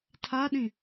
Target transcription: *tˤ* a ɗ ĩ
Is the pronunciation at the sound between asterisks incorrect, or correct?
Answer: incorrect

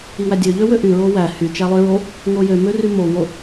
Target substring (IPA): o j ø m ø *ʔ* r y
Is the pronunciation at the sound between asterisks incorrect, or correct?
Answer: incorrect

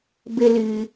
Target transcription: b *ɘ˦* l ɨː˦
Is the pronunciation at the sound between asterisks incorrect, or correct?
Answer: correct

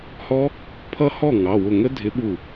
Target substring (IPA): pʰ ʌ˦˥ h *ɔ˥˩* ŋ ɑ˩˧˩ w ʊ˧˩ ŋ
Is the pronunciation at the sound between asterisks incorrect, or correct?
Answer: correct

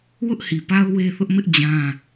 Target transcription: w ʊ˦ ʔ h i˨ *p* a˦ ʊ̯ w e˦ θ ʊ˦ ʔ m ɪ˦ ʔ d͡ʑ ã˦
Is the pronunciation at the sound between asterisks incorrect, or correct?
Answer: correct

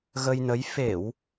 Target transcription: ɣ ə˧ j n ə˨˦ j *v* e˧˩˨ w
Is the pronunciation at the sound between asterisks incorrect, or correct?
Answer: incorrect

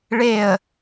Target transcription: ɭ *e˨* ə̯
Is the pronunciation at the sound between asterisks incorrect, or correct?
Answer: incorrect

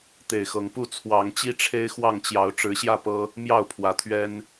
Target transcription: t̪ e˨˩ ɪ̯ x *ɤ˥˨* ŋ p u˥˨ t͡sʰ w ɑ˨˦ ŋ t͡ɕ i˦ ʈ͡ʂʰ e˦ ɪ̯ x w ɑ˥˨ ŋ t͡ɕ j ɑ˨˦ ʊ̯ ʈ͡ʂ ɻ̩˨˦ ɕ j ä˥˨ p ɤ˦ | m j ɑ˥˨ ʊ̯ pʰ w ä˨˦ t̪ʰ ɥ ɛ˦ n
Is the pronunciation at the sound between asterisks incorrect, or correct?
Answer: incorrect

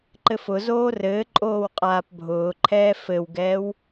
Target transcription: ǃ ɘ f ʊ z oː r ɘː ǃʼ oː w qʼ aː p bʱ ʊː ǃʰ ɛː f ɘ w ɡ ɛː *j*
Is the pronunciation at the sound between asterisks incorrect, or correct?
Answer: incorrect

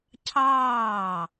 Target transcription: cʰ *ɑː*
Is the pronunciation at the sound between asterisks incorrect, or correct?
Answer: correct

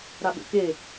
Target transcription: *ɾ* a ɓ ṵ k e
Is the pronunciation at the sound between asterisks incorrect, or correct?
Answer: correct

